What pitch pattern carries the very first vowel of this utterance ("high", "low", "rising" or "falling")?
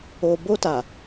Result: low